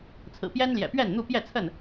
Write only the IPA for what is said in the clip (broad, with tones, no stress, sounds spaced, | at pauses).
t͡sʰ ɹ̩˨˩ p j ɛ˦ n l j ɛ̰˨˩ p ɥ ɛ˥˨ n n̪ u˥˨ p j ɛ˥˨ t͡sʰ ə˥˨ n